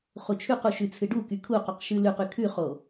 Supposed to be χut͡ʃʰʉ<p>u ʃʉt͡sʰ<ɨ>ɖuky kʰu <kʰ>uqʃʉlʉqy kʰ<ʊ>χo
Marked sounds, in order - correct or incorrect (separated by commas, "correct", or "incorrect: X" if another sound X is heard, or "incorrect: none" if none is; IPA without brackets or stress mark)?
incorrect: q, correct, incorrect: q, incorrect: ʉ